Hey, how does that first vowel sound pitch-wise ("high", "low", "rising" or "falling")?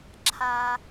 low